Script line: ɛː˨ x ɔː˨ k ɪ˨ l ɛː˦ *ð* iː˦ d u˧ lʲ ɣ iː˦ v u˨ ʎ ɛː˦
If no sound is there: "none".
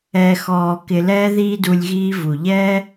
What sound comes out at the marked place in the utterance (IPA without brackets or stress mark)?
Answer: ð